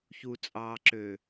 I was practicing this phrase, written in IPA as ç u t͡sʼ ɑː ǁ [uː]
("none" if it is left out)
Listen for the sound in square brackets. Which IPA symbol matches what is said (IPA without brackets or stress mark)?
øː